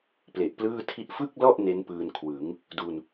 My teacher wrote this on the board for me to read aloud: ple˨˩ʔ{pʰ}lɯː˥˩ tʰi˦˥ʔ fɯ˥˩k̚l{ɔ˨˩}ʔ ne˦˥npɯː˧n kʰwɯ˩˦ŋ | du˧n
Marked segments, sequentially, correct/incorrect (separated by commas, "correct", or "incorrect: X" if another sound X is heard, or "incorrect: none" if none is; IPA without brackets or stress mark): incorrect: p, incorrect: ɔ˥˩